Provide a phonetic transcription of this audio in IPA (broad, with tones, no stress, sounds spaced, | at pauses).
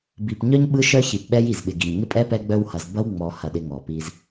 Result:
b i˨ p ɲ œ˦ ɲ ɓ ɯ˦ ʃ œ˦ ç i˨ p ɓ ɛ˦ j i˨ z ɓ ɪ˨ ɡ i˨ ɲ ŋ ɪ˦ pʼ ɛ˦ p ɛ˦ ɡ͡b œ˦ w h ɐ˨ z b ɐ˦ w ŋ͡m ɔ˨ h ɐ˨ ɗ ɪ˨ ŋ ɔ˨ p i˦ z